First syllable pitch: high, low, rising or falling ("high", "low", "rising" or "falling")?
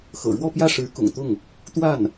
low